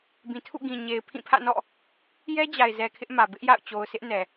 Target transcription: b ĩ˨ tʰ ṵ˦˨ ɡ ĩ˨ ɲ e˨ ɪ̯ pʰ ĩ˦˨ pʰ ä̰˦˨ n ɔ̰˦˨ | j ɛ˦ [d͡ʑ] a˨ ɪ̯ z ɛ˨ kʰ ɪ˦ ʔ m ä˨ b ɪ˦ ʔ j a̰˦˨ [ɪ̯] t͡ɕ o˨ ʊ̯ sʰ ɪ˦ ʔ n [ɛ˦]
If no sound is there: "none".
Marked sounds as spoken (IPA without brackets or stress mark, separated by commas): d͡ʑ, ʊ̯, ɛ˨